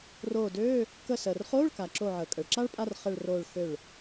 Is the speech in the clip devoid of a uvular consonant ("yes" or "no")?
no